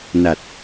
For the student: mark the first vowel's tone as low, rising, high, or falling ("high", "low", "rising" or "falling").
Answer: low